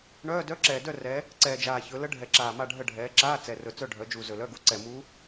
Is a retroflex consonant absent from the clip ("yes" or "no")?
no